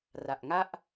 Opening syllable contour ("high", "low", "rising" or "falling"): low